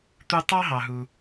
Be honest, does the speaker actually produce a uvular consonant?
no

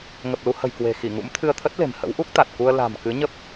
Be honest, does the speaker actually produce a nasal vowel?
no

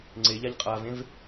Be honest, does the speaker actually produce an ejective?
yes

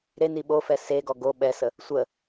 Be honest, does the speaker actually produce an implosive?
yes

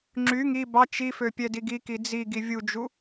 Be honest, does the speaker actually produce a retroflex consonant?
no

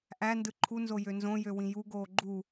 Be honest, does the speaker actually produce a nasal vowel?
yes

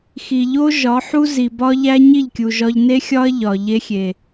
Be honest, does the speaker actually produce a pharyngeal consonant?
yes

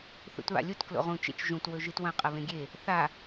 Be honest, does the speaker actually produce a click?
no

